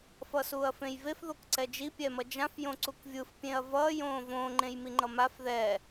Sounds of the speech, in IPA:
fʌsuːɐ̯fẽjvef ðokǀɛd͡ʒi pʲɛmʌd͡ʒãf jõǀukvʲɯf pʲẽɐ̯vʌː jõːvõ ŋ͡ǃẽjmiŋ͡ǃʌmaf ðɛ

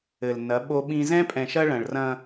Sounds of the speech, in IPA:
ɘ˨lnɐ˨˦ ɓo˦ɓĩ˦ zɛ̃˦pʼɛ̃˨ʃɐ˦ ɭɐ̃˨ɭrɐ̃˦

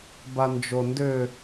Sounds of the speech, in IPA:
band͡ʒondʏ

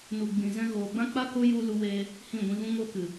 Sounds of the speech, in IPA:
nu˨ ɡ͡bĩ˨zɛ̃˧ ɣoː˨ɡ͡bã˦k͡pa˦ ko˧ ju˧ lu˧weː˧ | hĩ˦˨ɡʷĩ˧ɣũ˦ ŋo˧kɨ˨

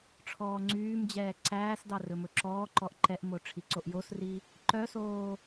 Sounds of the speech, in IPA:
ʈ͡ʂʰɔːŋ͡ǀyːmd͡ʑɛː ǀæːsdɑ rɵmɵǁɔːǃɔʔ ǃɛʔmo ʈ͡ʂʰiǀoʔjosri | ǃœsoː

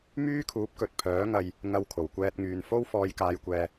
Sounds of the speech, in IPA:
myː˥kʰuː˨˥p̚kɵ˨t̚ pʰœː˨˥ŋɐ˧j | ŋɐ˧wkʰo˨˩wkʷɛː˧t̚ŋyː˨˧n fo˥wfɔː˧jkaː˧jkʷɛː˧

